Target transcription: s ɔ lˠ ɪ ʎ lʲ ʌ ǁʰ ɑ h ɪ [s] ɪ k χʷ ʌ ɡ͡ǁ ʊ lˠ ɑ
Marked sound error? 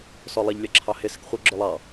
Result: no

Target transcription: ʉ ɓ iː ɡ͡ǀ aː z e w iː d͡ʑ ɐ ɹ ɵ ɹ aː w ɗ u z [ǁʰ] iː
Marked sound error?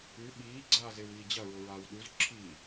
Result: no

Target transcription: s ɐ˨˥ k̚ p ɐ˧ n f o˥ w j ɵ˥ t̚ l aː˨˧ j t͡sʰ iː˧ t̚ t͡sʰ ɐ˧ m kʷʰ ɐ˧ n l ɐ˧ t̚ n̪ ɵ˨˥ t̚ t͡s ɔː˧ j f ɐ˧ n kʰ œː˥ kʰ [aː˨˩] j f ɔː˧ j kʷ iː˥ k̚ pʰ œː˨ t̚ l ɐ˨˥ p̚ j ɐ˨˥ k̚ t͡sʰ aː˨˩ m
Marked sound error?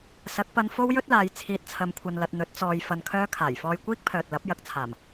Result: no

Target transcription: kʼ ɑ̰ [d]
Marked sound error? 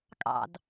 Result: no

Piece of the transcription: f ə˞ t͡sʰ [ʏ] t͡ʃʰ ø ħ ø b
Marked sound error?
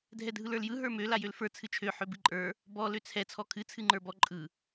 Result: yes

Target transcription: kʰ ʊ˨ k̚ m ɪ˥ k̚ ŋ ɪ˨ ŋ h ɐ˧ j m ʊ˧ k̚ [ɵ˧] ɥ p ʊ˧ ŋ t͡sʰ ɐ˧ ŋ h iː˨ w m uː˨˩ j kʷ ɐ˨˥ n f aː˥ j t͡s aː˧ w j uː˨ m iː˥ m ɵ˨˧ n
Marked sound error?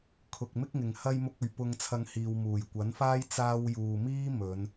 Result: yes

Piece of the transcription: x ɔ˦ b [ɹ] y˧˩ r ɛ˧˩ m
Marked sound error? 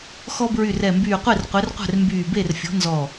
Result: no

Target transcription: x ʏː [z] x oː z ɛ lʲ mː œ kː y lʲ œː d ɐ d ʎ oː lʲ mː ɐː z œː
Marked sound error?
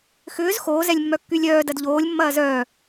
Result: no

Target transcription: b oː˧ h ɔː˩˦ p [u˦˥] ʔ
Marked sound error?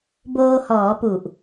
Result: yes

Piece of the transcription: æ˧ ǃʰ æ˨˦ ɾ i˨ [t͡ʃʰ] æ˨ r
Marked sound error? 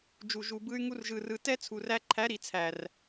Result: yes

